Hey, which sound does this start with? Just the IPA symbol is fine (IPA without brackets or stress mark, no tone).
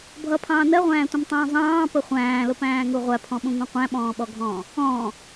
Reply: bʱ